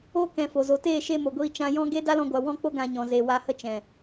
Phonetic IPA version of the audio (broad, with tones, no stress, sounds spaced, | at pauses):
o˦ k ɛ̃˧ f o˨ z o˨ t eː˦˨ ʃ e˧ m o˨ ɡʷ iː˧ t͡ʃ ã˧ j ɔ̃˦ ɡ e˦ d a˦ l ɔ̃˧ ɡʷ a˨ w ɔ̃˧ k͡p o˧ ɡ ã˧ ɲ ɔ̃˨ z e˨ w a˧ h ə˦ t͡ʃ ɛ̃˨